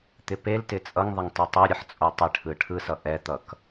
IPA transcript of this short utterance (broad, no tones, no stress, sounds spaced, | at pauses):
t̪ ɪ p e l t ɪ t͡sʼ ʌ ŋ ðˤ ɪ ŋ tˤ o tˤ o ɾʲ ʌ ħ t͡sʼ o tˤ ɪ ʈʰ ɯ ʈʰ ɯ s ʌ ʔ ɛ t̪ ʌ k